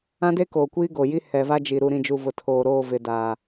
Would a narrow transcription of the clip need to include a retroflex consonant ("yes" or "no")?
no